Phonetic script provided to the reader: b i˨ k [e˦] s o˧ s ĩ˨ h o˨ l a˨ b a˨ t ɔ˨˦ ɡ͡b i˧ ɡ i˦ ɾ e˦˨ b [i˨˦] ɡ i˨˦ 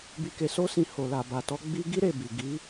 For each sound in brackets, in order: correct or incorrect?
incorrect: e˨, incorrect: i˨

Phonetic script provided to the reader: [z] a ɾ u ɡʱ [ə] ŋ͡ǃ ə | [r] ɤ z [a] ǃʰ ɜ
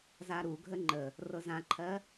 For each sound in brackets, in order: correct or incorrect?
correct, correct, correct, incorrect: ã

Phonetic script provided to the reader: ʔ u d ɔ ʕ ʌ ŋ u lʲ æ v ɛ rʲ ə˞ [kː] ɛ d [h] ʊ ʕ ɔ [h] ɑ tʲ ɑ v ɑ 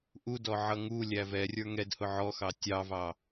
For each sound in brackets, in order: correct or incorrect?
incorrect: ŋ, correct, incorrect: x

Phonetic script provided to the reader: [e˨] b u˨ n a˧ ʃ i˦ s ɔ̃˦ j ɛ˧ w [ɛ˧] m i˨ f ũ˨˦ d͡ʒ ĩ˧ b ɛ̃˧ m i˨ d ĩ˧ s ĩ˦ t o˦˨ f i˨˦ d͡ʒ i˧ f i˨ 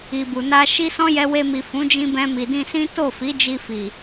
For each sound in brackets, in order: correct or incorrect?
incorrect: i˨, incorrect: e˧

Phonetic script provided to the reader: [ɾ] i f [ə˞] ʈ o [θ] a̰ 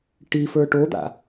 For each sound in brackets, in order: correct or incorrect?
incorrect: ʈ, correct, incorrect: d̪

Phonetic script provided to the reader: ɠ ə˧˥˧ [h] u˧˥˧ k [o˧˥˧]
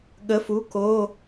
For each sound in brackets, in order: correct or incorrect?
incorrect: f, correct

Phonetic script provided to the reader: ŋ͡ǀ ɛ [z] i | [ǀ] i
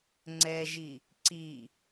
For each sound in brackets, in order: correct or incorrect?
incorrect: ʒ, correct

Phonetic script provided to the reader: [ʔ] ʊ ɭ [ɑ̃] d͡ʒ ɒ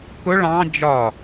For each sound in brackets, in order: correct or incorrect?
incorrect: k, correct

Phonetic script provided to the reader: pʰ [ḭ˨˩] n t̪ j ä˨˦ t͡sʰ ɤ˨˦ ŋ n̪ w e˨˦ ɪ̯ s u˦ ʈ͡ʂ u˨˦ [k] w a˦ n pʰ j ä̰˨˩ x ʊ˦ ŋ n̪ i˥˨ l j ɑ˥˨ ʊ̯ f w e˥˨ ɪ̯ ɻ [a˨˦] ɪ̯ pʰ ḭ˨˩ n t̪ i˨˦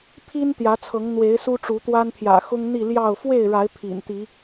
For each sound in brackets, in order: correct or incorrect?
incorrect: i˦, incorrect: t̪, correct

